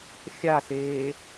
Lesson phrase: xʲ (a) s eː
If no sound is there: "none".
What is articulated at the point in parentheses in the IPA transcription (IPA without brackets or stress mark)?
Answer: a